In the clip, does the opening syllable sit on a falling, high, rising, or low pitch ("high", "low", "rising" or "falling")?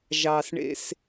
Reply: low